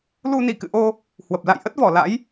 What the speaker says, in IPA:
l u˧ n i˧˩ k ɨ̰˧˨ ʔ o˧ | h w ə˨˩ p̚ l a̰˧˨ j ʔ ə˦˥ t̚ v ɔ˧˩ l a̰˧˥ j

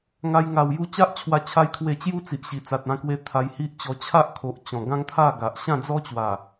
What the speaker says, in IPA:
ŋ a˧ j ŋ a˨˩ w j u˧ t͡ɕ a˦ ʔ t͡ɕʰ w a˧ t͡ɕʰ a˧ j kʰ w e˧ t͡ɕ j u˦ t͡s i˨ ʔ ɕ i˨˩ t͡s a˨ t̚ ã˧ k w e˧ t̪ʰ a˧ j h i˦ ʔ t͡ɕ ɔ˧ t͡ɕʰ a˦ ʔ kʰ o˨ ʔ t͡ɕ ɔ̃˨˩ ɡ ã˦ ŋ t̪ʰ a˥˧ ɡ a˨ ʔ ɕ ã˥˧ d͡z ɔ˦ t͡ɕ w a˨˩

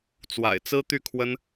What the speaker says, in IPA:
t͡s w a̰˨˩ ɪ̯ t͡s ɹ̩˥ t̪ y˥˩ kʰ w ə˥ n

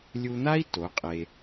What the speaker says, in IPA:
lʲ u˧ n̪ a˦ i̯ t o˨˦ qʼ e˧

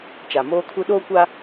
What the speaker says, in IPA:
t͡ʃ a˨ m oː˦ kʰ u˦ ɗ oː˦ kʷ a˦

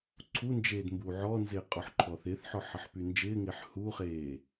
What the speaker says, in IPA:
ǀʰ u n d͡ʒ eː d m b uː ʕ ɔ n z ɪː qʼ ɔ ħ ǃʰ ɔ θ ɪː θ ħ ɔ ħ ʌ ħ p y n d͡ʒ ɪː ŋ ɪː ħ h u χ eː

